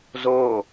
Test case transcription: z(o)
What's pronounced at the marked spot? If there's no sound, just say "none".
o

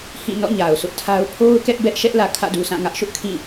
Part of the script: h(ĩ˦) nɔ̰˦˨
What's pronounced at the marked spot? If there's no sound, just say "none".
ĩ˦˨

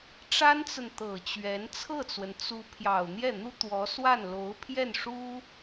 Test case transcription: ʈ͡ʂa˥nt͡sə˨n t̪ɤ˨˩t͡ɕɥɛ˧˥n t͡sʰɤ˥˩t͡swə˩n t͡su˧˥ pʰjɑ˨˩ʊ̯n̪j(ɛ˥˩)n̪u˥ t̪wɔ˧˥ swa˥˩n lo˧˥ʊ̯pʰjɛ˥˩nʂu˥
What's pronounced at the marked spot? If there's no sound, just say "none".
ɛ˥˩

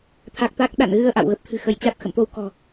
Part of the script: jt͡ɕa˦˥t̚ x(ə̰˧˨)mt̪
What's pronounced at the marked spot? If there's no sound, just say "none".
ə̰˧˨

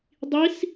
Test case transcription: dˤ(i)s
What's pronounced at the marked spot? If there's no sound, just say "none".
i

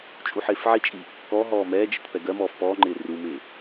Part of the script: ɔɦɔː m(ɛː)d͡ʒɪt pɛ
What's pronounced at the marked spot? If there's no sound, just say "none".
ɛː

